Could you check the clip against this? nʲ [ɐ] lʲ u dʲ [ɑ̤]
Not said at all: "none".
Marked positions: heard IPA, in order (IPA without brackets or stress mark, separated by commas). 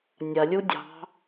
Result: ɐ, ɑ̤